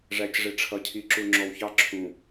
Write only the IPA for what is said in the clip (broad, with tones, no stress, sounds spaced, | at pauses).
ʐ æ˨ c ʐ ɪ˨ ʈ͡ʂʰ ʌ˨ cʰ i˨ ǁ u˨ ŋ͡ǁ ɔ˨ w ç ɑ˦ ǁʰ ũ˨